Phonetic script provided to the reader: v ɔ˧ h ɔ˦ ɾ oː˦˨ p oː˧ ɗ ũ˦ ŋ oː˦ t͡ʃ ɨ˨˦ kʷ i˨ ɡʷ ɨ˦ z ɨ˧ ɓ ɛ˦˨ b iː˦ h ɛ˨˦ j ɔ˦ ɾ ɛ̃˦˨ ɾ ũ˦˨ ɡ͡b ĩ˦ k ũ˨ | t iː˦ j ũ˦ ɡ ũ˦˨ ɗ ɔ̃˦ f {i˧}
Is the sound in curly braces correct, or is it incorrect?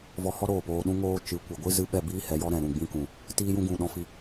correct